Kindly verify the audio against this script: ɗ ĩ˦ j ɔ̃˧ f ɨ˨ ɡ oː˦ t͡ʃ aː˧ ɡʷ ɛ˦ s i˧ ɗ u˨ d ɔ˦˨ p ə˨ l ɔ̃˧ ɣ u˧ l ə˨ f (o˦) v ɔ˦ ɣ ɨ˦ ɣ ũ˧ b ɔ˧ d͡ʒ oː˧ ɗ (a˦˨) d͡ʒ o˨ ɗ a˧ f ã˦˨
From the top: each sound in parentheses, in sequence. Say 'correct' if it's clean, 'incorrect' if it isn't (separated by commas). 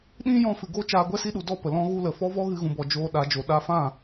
incorrect, incorrect